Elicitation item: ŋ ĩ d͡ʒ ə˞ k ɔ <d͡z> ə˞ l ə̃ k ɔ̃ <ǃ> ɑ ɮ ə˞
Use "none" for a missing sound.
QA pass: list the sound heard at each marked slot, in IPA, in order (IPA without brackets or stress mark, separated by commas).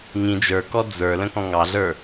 d͡z, ŋ